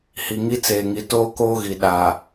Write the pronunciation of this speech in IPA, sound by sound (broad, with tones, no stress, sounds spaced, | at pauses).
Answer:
h i˨ ŋ i˦ t͡s eː˨ ŋ i˨ t oː˦ k oː˦ ɣ i˨ ɗ a˨